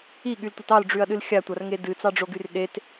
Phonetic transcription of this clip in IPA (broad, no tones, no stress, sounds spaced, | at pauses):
i ɠ y l tʷ ʌ t ɑ l ɖ͡ʐ y ɐ̯ ɗ ɨ l xʲ a tʷ a r ŋ e d ɨ t͡s ɑ ɖ͡ʐ o ɡ y r ɗ e t